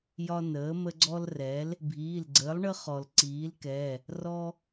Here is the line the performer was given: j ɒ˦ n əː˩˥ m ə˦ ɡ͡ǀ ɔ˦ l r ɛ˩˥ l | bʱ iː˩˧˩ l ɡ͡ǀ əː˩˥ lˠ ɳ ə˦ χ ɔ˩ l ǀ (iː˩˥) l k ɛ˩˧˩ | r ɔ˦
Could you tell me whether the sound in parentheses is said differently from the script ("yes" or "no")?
no